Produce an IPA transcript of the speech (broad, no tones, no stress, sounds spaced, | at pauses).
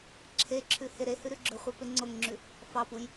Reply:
ǁʰ e ǁʰ ʉ h e ɾ e h ʉ ɾ ʉ ɡ͡ǁ ɵ χʷ e p e ŋ͡ǀ o ŋ ŋ͡ǁ ʉ | f ɑ p u j